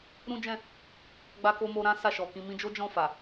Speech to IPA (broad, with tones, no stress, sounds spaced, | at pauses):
ɾ ũ˦ d͡ʒ ɛ̃˦˨ | ɡ͡b a˦ k o˦ m o˧ ɾ ã˦ s a˦˨ ʃ ɔ˨ k ĩ˧ m ĩ˧ d͡ʒ o˦ d͡ʒ ɔ̃˦˨ f a˨